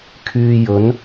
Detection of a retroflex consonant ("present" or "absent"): absent